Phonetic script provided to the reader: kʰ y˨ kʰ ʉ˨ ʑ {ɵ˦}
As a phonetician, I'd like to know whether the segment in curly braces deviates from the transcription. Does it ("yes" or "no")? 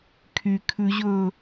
yes